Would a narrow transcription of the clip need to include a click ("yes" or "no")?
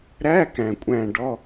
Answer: no